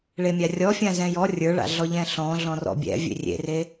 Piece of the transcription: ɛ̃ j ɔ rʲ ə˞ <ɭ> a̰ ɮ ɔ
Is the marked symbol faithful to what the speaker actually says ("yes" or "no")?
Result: yes